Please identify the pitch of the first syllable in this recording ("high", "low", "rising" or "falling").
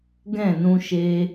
falling